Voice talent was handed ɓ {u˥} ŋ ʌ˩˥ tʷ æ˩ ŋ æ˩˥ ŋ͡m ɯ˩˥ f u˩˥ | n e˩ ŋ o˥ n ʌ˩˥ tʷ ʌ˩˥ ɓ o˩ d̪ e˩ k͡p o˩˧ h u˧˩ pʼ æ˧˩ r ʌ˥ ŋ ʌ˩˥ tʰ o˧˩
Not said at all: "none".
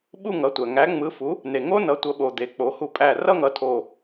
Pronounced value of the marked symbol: u˥˧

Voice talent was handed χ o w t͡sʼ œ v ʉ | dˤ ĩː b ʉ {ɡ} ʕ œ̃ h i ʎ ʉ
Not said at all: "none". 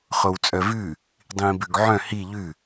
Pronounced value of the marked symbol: ɡ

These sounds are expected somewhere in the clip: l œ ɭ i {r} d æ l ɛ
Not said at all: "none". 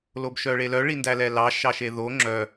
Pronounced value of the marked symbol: n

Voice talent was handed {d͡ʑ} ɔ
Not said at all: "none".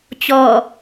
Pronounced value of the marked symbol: t͡ɕ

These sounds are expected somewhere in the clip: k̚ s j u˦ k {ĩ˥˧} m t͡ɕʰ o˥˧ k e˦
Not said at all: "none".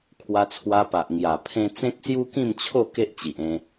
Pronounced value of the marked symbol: ĩ˥˧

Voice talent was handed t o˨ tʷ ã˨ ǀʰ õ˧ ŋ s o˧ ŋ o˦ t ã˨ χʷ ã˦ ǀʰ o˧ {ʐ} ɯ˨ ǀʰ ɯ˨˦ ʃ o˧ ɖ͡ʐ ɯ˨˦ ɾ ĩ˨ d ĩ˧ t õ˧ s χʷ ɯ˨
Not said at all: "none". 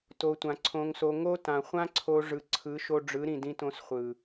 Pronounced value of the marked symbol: ʐ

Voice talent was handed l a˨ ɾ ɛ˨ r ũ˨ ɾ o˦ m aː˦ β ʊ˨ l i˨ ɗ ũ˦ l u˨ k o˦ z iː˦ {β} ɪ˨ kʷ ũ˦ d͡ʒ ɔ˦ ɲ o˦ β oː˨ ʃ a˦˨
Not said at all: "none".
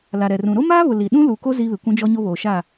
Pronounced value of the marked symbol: β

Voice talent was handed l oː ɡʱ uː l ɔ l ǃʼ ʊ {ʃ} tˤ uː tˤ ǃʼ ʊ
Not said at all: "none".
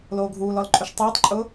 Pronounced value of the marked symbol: ʃ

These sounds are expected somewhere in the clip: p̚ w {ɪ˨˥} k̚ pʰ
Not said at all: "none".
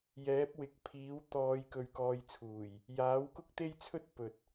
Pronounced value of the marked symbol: ɪ˨˥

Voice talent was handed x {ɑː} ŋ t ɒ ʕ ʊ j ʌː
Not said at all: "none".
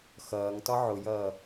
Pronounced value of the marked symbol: ʌː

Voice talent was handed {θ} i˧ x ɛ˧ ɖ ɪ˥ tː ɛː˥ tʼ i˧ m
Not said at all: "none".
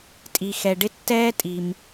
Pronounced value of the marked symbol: tʼ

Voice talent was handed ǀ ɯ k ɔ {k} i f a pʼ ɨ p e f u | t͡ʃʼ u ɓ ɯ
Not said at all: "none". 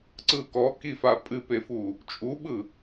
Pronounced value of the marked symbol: k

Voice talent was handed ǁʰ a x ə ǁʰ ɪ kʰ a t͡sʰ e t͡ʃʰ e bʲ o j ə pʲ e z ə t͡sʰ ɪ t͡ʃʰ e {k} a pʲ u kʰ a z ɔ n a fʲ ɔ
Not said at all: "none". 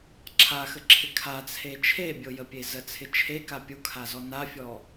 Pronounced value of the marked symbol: k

